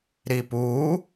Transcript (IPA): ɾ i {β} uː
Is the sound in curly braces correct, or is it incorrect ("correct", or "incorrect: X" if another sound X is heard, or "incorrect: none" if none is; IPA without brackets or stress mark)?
incorrect: p